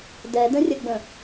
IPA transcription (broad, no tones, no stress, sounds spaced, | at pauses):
d ɛ d ə̃ rʲ ə ɡ͡b ə̃